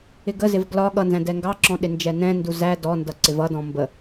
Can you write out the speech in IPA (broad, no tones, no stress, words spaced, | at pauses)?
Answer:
ɪɡəzɪv ɡlɒ ɠʌnzæ̃ dɛŋɡɑǁɔ̃ ɗɪnd͡ʒɛnɛ̃ndu zæ dɔndʌ ǀɪvʌdɔ̃ mbə